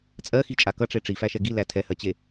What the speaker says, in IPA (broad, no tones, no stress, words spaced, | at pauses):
t͡sʼɜxit͡ʃʼa kʌʈ͡ʂe ʈ͡ʂifæʃɛ ɡilæ tʰɛhɜt͡ɕe